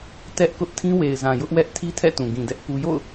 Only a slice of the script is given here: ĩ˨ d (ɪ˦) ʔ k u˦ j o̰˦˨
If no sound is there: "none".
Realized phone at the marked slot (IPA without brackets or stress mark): ɛ˦